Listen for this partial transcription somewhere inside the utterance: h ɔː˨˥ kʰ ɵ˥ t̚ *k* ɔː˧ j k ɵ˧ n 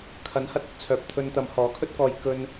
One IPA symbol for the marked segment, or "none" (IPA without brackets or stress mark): k